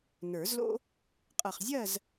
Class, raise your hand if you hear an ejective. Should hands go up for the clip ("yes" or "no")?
yes